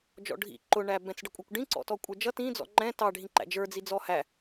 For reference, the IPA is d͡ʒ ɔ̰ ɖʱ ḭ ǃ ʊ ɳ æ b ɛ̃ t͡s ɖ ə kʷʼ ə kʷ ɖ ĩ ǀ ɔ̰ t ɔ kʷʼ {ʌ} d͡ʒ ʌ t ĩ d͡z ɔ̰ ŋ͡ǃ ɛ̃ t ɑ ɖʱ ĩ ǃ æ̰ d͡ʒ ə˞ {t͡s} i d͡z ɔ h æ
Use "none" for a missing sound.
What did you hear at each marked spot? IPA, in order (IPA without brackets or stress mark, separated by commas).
ə˞, d͡z